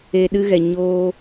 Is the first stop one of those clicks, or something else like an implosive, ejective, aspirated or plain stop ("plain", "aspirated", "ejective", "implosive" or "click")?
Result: implosive